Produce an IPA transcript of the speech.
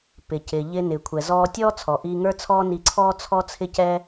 p ɪ˩ c ɪ˩ ʎ ɪ˧ n ɪː˩ kʷʰ ɛ˩ z ɔː˧ tʲ ɔː˥ t͡sʰ ɔ˩ ʔ iː˧ ŋ ə˞˥ t͡sʰ ɔː˥ n i˧ ǀʰ ɔː˥ t͡sʰ ɔ˥ t͡sʰ ɪ˥ c ɛ˥

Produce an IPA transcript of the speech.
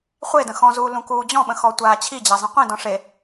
χʷ e d ə̃ x ɔ̃ z uː l ũ k uː d͡ʑ ɔ̃ ɓ ə̃ x ɔ tʷ aː t͡ɕʰ i d͡ʑ a zˤ ĩ qʷ ĩ d ɔ̃ ʂ e

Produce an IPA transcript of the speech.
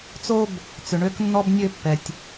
t͡s o˥ b | t͡s ʏ˩ ɳ ø˥ k nː ɔ˥ b nʲ ø˥ pː ɛ˩ tʲ

